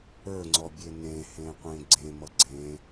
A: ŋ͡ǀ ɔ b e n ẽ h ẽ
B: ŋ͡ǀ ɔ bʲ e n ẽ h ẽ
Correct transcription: B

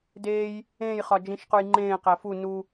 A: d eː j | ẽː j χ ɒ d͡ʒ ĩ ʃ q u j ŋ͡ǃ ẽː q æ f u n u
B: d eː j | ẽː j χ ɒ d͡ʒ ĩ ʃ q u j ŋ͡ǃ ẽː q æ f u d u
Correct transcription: A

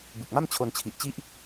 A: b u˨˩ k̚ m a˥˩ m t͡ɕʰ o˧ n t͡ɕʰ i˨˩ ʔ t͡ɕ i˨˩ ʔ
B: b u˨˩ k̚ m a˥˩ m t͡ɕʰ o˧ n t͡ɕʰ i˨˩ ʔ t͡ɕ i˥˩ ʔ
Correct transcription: B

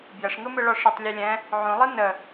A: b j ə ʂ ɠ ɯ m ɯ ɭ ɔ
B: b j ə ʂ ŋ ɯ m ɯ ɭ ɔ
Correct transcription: B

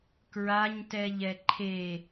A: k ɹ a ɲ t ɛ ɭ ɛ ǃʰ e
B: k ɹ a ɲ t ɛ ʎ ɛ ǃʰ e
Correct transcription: B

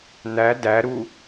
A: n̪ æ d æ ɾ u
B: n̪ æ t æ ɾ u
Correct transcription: A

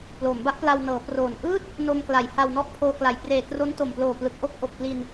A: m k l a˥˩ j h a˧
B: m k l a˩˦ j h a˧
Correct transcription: B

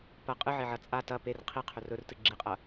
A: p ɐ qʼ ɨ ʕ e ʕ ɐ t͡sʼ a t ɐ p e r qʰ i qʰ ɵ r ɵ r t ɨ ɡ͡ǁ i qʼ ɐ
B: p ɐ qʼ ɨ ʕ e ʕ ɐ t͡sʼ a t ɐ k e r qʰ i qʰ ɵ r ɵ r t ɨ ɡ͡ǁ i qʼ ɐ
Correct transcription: A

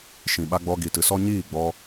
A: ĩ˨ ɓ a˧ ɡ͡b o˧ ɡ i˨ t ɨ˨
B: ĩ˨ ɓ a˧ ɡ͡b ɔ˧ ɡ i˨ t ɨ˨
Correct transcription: B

